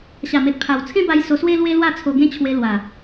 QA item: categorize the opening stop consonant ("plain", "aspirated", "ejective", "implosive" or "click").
plain